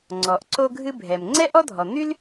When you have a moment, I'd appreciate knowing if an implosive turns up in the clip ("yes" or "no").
no